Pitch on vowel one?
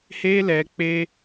high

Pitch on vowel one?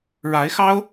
rising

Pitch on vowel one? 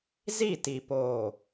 falling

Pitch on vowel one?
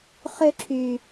high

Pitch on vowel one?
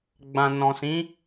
low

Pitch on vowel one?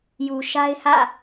low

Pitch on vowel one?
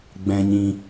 low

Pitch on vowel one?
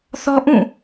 high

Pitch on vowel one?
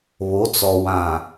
rising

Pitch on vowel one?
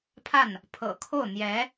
falling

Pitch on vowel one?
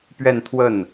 falling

